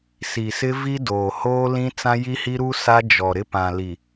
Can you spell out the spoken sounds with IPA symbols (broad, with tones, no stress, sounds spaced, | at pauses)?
s i˨ s ɪ˦ v i˦ d oː˨ h oː˦ l ĩ˦ t͡s ã˦ j i˦ h i˦ ɾ u˦ s a˦ d͡ʒ ɔ˨ ɾ ɪ˦ p ã˨ l i˨